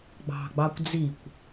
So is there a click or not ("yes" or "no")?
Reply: no